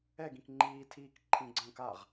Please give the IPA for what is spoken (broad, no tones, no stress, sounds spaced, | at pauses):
ɛ ɡ ĩ k ŋ͡ǃ iː tʰ iː k ǃʰ ĩ ɡ͡ǀ ə̃ː k a ʁ